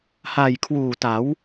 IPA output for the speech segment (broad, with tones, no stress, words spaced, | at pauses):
ha˨˩jkʰwuː˨˩ta˩˦w